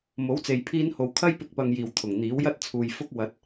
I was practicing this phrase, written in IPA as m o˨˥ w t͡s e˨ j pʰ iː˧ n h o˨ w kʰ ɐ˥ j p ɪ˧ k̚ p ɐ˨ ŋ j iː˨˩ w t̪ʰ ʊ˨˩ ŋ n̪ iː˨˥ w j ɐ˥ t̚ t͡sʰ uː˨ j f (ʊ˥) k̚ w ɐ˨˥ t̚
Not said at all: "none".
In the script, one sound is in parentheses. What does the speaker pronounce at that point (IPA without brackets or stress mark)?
ʊ˥